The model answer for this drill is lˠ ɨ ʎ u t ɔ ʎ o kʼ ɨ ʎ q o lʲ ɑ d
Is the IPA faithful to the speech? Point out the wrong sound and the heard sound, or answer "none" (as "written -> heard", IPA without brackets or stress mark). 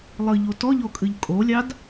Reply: q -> kʼ